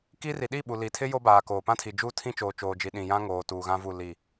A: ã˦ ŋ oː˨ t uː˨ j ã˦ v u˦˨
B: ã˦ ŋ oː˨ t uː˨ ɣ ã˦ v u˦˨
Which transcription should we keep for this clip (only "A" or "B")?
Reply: B